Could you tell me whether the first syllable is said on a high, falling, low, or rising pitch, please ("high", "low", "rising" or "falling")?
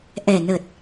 low